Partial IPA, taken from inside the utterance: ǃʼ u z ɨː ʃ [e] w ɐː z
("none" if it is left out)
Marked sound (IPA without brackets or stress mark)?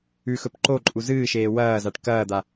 eː